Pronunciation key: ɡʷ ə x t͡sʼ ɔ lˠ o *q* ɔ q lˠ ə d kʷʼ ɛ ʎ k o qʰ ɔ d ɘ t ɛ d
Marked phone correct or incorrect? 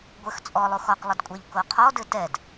incorrect